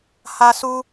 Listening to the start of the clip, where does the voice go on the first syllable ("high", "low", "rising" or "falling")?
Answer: high